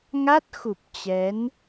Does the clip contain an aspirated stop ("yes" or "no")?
no